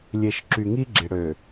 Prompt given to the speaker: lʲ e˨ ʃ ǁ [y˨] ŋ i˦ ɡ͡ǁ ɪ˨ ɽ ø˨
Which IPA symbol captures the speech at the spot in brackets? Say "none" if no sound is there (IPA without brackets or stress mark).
y˨